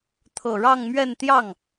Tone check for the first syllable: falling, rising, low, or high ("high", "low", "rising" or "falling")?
low